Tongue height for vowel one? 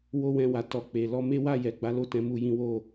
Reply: mid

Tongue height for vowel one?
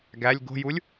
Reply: low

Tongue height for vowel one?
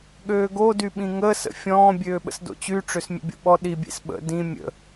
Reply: mid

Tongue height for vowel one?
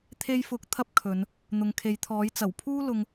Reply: mid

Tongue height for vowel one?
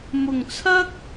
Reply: high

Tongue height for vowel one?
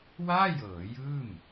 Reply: low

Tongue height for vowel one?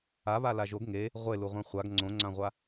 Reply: low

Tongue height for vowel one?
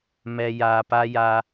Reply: mid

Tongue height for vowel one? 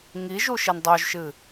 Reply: high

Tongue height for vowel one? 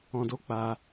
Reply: mid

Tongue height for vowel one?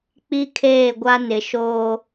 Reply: high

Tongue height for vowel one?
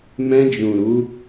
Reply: mid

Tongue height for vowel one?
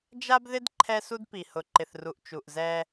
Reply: low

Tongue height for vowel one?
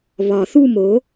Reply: low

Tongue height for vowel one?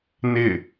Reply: high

